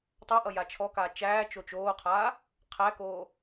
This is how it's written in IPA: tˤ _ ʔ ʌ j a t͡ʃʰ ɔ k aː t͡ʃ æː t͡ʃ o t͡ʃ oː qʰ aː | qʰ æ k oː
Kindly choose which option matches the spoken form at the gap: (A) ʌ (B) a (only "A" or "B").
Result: B